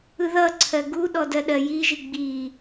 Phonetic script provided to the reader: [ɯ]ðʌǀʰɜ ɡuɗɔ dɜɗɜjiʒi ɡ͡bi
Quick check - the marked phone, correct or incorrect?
correct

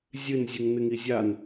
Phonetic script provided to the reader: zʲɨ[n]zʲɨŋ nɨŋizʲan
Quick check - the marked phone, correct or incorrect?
correct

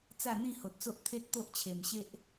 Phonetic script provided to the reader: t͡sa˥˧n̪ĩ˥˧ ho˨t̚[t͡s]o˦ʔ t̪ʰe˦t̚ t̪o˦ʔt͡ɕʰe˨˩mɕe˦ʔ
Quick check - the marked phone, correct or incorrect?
correct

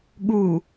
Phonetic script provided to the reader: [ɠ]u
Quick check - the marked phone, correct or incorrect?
correct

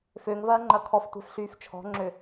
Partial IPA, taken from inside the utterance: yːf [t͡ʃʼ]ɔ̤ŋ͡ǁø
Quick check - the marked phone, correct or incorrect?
incorrect: t͡ʃʰ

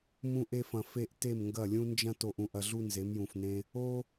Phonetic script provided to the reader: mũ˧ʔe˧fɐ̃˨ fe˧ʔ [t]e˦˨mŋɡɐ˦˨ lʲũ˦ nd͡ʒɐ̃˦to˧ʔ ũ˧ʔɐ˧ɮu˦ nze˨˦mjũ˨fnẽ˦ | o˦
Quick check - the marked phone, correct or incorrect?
correct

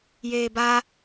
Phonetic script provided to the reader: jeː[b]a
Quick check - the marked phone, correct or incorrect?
correct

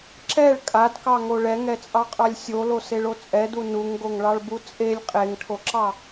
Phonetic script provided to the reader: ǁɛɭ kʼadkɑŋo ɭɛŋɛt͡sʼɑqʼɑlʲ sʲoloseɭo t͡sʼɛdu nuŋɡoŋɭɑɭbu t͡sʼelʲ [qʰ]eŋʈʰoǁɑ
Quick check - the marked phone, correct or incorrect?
incorrect: qʼ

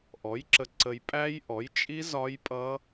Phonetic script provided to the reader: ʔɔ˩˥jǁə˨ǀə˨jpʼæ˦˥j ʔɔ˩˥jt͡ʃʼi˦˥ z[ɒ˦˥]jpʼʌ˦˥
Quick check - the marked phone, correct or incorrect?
correct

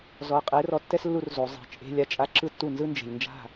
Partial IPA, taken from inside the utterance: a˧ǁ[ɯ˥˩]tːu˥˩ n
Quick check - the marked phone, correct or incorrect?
correct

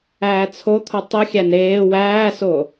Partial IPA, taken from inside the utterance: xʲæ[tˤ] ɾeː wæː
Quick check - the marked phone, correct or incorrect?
incorrect: n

